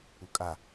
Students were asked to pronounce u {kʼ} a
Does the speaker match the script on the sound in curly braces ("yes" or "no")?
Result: yes